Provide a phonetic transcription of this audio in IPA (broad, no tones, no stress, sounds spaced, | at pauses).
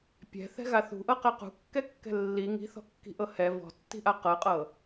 pʲ ɛ̤ θ ɛ̤ ɣ a θ ṳ ʔ ɤ q ɛ q ṳ kː ɛ kː ɛ̤ lː i ŋ i̤ θ ɔ̤ kː i̤ ʔ ɤ h ɛ v ɔ̤ tː i̤ ʔ a q ɤ qʼ ɤ